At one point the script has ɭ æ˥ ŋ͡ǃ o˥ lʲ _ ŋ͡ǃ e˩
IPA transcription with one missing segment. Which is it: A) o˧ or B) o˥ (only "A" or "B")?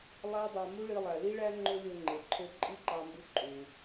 A